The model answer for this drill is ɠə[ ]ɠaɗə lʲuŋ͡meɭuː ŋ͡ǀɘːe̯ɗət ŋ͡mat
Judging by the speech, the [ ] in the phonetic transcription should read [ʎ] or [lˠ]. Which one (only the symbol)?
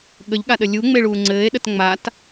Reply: ʎ